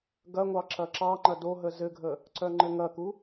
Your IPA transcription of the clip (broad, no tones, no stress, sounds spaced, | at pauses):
ɡ ɐ ŋʷ ɑ ǁ ɐ ǁ ɑ ŋ͡ǃ ɐ d o ɦ ə z ɘ ɡʱ ə | ǀ œ ŋ͡ǃ ɘ ŋ ɐ k u